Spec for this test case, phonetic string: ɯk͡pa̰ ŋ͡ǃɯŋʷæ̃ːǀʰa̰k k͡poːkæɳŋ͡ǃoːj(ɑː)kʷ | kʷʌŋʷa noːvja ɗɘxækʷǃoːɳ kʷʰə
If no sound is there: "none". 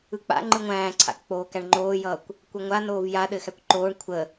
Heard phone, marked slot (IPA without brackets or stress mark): ʌː